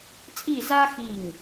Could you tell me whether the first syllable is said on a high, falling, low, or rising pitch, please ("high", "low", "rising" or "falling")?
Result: falling